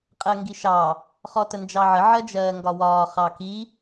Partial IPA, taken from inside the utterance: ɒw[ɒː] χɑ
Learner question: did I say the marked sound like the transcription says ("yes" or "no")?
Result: yes